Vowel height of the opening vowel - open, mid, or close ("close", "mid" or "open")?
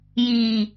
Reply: close